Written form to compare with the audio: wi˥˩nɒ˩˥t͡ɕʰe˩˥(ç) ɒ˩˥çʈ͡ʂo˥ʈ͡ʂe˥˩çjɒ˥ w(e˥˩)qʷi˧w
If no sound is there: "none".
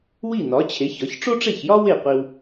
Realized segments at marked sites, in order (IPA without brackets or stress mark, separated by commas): ç, e˥˩